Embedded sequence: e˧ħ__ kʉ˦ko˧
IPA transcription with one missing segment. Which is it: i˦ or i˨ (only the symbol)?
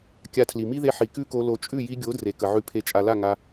i˨